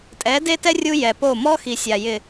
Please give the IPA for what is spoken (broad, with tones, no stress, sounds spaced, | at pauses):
tʼ ɛ˨˦ d e˦ t ɛ˦ rʲ u˦ j ɛ˨ p o˦˨ m ɔ˦ x i˨ sʲ a˨ j ɪ˨